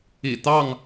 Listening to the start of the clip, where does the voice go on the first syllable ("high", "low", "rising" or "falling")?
low